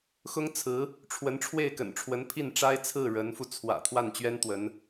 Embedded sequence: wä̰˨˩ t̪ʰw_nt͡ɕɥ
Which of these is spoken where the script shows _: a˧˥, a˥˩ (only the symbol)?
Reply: a˥˩